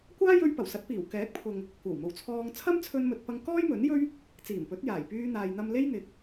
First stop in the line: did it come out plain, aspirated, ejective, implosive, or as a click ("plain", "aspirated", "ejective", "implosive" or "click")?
plain